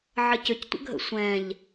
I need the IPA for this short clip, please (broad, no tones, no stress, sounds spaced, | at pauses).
ʕ ə c ʏ c tʷ ə̰ ɡʱ ə̰ sʷ ɛ̃ ʎ